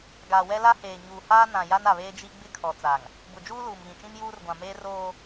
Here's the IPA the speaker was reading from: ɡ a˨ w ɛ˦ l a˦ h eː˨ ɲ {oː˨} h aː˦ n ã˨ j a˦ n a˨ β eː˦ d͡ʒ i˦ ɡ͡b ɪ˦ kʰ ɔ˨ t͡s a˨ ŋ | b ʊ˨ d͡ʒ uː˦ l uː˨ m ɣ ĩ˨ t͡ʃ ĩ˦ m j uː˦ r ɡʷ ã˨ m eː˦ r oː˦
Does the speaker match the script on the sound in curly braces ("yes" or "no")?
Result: no